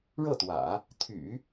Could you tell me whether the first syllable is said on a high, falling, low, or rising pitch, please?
falling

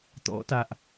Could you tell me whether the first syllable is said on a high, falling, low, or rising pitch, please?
rising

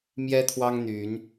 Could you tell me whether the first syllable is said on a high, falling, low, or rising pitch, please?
high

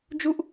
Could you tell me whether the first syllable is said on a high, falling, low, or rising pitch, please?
high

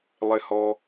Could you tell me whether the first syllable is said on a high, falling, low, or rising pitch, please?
low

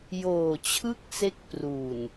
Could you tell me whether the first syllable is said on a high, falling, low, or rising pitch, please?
low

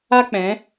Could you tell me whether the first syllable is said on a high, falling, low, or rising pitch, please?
high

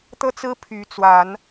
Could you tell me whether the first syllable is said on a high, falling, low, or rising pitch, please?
high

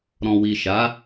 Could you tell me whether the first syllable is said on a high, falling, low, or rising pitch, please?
low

